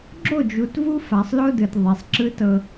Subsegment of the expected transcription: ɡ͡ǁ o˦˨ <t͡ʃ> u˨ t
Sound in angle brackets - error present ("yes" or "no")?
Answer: yes